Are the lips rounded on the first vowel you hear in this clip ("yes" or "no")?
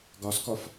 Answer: yes